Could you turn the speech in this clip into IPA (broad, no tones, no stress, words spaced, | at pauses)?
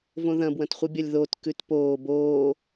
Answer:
võðɐ̃bwɐ̃tχʷɨ bʲɐlʲðot kʉtpoː boː